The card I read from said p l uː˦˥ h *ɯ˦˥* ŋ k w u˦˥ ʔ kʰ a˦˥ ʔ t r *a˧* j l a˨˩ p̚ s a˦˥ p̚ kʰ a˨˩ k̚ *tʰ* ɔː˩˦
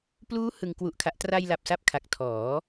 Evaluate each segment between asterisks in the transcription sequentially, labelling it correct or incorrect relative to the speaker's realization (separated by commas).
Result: incorrect, correct, correct